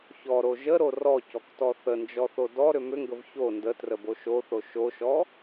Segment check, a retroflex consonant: absent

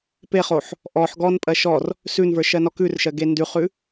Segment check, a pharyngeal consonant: present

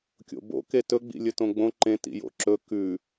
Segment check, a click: present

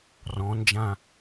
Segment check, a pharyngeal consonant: absent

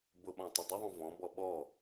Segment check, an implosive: present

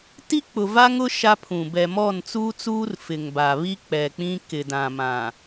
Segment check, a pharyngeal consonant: absent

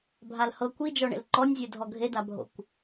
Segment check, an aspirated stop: absent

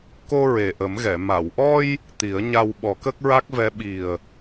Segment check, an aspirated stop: absent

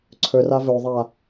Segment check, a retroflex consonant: absent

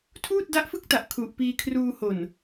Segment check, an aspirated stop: present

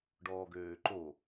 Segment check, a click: present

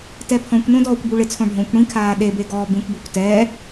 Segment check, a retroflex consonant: present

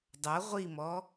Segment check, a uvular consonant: present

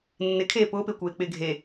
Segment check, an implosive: absent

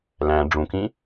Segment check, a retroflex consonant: present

